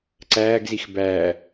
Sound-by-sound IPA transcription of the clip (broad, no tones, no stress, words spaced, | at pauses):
ǀæːɡzix bæː